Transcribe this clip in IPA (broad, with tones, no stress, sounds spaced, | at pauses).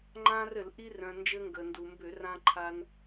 ŋ͡ǃ ã˧ r ɘ˧˩˧ l ʔ i˧ r œ̃˩ n d͡ʒ ɘ˧ ŋ ɡ ə˩ n d u˩ m b ʏ˧˩˧ r ã˧ ǃʰ a˧ n